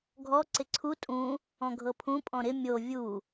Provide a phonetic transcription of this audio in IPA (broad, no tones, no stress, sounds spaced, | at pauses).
ɡʱ ɔ ǀ ɪ ǀʰ u tʼ ũ | ɔ̃ ɡʱ ɤ pʰ ũ pʼ ɔ̃ ɾ ɪ mʲ o vʲ u